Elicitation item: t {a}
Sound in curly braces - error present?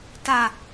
no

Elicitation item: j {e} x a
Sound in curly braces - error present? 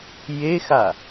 no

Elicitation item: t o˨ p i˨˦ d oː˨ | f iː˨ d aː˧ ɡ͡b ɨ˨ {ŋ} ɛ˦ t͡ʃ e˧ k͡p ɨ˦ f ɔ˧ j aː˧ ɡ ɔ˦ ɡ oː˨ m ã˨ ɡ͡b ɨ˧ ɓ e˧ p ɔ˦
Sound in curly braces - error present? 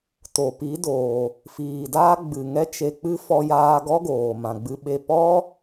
no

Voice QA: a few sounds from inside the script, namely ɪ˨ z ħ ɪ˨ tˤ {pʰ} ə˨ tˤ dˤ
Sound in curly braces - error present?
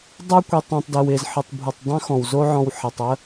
yes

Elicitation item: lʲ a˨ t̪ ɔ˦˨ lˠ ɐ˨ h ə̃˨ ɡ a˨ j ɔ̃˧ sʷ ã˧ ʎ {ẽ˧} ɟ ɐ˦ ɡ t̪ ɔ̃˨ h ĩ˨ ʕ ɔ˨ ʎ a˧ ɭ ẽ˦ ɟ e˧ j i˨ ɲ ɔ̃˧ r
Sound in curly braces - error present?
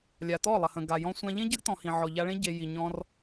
yes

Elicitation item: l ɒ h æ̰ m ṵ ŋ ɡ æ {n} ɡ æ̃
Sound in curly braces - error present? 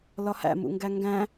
yes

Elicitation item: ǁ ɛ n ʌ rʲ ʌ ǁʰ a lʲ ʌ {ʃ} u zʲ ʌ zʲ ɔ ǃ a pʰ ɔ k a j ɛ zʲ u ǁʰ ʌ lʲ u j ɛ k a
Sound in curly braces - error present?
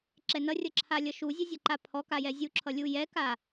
no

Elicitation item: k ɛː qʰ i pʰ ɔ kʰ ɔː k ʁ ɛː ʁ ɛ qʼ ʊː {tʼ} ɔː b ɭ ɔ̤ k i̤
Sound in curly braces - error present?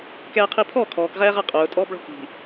no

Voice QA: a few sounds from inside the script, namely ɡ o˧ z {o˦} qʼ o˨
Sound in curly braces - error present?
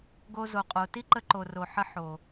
yes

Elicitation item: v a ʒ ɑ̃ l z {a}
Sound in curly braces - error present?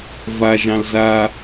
no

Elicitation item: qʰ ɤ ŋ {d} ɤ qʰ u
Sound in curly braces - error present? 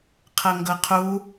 yes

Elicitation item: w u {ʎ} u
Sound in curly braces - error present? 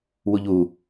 no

